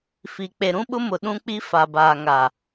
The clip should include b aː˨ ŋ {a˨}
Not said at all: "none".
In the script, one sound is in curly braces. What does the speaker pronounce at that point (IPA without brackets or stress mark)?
a˨